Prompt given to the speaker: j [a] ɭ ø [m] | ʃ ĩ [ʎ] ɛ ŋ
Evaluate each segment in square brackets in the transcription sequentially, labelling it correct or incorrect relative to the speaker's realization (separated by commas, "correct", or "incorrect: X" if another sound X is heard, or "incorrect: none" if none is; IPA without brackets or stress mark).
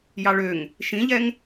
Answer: incorrect: ɑ, incorrect: ŋ, correct